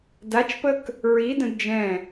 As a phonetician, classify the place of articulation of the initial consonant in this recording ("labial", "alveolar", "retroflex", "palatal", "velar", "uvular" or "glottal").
alveolar